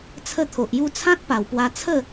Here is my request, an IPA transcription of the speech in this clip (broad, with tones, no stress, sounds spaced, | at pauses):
t͡sʰ ə˥˧ t̪ʰ o˨ ʔ j u˦ t͡sʰ ã˦ t̚ p a˨˩ w p w a˧ t͡sʰ ə˥˧